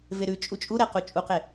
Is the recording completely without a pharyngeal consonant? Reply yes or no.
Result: yes